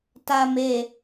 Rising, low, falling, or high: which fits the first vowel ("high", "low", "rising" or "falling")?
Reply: low